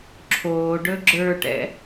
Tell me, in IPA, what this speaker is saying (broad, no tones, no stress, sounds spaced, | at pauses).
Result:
ǁʰ oː ɖ ɵ ɡ͡ǁ ə˞ ʈ ɛ̰